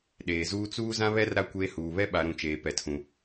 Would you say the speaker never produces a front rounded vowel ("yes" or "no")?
yes